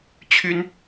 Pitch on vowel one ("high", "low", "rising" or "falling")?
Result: high